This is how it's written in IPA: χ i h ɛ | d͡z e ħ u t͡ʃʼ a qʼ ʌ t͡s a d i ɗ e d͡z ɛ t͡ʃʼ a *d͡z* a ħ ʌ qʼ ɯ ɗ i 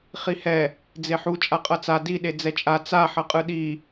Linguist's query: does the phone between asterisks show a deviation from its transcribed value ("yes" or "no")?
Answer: yes